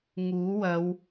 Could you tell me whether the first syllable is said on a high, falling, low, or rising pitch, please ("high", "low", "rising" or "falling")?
rising